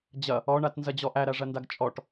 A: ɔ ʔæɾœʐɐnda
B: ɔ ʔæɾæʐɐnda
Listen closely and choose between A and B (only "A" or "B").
B